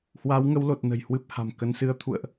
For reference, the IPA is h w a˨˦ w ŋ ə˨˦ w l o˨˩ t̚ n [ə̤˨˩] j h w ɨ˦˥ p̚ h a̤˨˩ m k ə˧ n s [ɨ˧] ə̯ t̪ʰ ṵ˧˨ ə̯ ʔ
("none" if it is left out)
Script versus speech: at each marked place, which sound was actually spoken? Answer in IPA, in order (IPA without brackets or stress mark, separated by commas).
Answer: ə̤˨˩, ɨ˧